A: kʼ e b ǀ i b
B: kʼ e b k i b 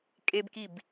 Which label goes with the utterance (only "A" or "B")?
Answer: B